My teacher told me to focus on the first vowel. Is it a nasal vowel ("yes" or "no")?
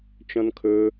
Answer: yes